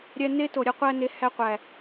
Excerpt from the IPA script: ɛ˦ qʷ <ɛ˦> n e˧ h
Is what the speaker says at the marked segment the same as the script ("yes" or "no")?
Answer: no